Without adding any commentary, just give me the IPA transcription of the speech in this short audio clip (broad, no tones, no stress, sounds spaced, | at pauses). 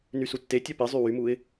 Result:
n y s u tː e tʲ œ p i zˤ y w y m u ɪ̯